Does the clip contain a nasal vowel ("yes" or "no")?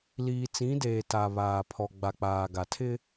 yes